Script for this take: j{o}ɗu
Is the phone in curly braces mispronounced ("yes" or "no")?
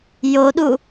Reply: no